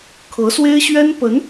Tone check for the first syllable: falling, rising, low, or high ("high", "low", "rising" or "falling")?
rising